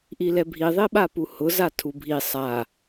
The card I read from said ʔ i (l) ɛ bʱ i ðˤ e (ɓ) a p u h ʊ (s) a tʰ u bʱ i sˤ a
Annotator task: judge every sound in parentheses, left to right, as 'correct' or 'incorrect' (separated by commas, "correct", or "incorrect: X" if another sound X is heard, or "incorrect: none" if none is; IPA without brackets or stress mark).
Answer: correct, correct, incorrect: z